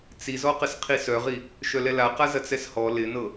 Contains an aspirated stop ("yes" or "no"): yes